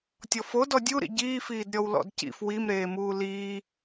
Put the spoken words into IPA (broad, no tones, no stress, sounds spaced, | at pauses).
tʲ ɔ f o d ɔ dʲ u ɾ ḭ ɟ iː f iː d ɾʲ ɔ w l ɔ̰ d c ḭ f w i m ɾ eː m uː l iː